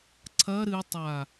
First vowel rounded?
no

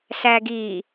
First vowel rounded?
no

